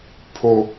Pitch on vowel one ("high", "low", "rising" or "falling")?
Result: high